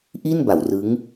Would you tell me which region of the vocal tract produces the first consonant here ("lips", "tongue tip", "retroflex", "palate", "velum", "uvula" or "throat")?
throat